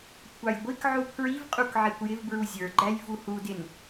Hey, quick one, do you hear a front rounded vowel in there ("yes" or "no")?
no